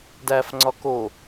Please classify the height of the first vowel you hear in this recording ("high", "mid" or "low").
low